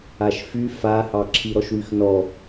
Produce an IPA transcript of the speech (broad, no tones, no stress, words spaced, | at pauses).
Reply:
aʃfy fahɑ ǁʰiɾɔʃwyxnɔ